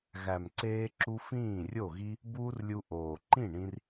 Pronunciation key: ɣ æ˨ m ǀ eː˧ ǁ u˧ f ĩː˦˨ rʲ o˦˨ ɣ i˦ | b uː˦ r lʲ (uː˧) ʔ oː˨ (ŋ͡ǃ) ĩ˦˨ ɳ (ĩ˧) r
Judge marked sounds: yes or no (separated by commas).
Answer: no, no, yes